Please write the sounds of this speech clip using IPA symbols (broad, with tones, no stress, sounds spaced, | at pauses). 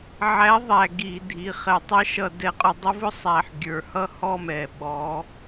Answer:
ʕ æ˨˦ ðˤ æ˩ ɡ i˧˩˧ dʱ i˩˧˩ χ ɛ˧˩˧ tˤ ʌ˦˥ ʃ ʌ˧˩˧ d ɛ˧˩˧ qʼ ʊ˨˦ dˤ ʊ˦˥ v ʊ˦˥ sˤ æ˩ ħ ɡʲ ə˞˩ h ʌ˥˩ h ɔ˥˩ m ɛ˩ ɓ ɔ˨˦